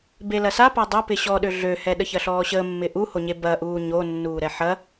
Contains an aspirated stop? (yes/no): no